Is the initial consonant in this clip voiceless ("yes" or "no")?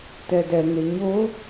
yes